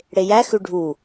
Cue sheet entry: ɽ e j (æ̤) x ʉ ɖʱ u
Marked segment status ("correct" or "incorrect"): incorrect